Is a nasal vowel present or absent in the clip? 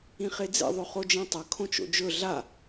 present